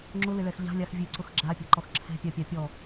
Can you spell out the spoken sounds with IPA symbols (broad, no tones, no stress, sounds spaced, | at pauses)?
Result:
ŋ͡ǁ ʊ l ɪ ɭ ɛ x ʎ a̤ lʲ a x vʲ e ǀ ʊ x ɡ͡ǁ a pʲ a̤ ǃ ɔ x ǁʰ ɛ̤ pʲ a pʲ a pʲ ɔ